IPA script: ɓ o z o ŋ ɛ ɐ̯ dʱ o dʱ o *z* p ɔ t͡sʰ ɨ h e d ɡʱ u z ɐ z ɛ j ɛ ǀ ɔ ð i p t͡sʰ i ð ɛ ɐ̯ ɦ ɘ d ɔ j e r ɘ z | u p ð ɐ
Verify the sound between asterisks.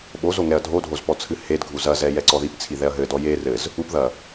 correct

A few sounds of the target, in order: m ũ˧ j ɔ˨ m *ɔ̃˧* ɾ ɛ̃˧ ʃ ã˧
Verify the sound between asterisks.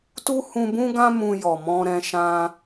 correct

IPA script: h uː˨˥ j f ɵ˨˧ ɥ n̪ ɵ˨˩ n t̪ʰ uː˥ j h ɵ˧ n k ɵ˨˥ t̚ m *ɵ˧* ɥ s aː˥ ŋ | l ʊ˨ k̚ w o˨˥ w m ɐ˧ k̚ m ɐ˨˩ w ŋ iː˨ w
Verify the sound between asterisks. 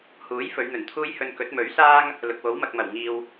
incorrect: ɵ˨˥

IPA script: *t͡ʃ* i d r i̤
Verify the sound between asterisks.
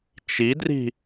correct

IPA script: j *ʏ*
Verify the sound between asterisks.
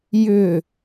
correct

